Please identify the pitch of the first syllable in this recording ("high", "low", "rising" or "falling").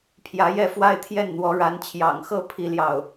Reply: rising